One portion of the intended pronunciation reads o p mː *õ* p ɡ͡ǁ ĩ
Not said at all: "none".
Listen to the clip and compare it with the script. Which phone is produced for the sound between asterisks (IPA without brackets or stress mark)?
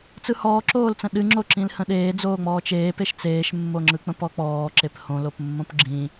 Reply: õ